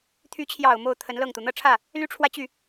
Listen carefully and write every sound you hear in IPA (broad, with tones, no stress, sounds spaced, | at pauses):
t̪ʰ y˧˥ t͡ɕʰ j ɑ˨˩ ʊ̯ m o˥˩ ʊ̯ t̪ʰ ə˧˥ n l ɤ˥˩ ŋ t̪ u˩ n̪ ɤ˥˧ ʈ͡ʂʰ ä˥˩ | l y˥ ʈ͡ʂʰ w ä˥˧ t͡ɕ y˥˩